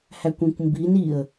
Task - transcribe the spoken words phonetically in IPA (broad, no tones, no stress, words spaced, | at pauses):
hækʷĩkʷmbin iə̯